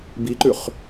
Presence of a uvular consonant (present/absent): present